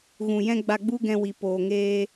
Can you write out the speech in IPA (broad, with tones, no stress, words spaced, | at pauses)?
ɣũ˨jɛ̃˧ ɡ͡ba˧ɡ͡bu˦ɡɛ̃˧wi˨ poː˨ŋeː˧